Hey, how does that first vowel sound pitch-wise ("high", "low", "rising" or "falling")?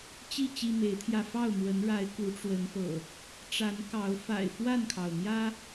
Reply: falling